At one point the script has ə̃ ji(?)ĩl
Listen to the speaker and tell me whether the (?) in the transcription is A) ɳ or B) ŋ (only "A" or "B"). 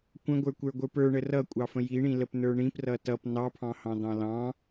A